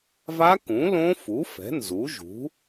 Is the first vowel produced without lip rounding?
yes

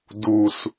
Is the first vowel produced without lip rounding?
no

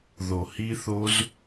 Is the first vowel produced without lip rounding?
no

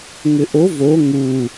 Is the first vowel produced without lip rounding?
no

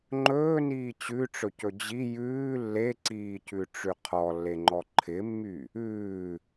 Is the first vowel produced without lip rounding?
no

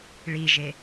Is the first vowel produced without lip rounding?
yes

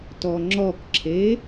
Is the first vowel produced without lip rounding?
no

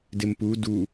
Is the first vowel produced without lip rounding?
yes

